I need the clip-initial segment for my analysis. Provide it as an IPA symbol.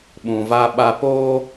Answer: ɓ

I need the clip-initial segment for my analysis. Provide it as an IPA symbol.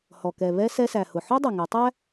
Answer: h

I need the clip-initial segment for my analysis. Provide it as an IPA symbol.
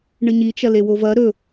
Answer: ɳ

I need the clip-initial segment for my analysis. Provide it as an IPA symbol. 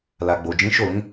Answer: l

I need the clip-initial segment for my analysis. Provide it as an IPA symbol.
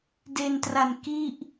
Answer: d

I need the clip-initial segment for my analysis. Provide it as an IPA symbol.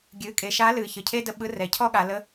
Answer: ɡʲ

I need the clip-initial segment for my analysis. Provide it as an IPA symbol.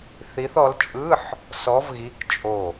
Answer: θ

